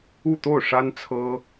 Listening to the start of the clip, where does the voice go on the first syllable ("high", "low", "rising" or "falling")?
falling